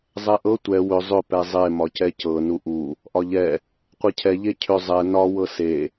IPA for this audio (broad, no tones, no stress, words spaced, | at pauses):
zˤɛʔɤ tʷɛ wʏ zˤʏ pɛzˤe mɒcɛcɤ nuʔu | ʔɒʎɛ | qʷecʰɛ ʎecʰʏ zˤɛ nɒ wɤse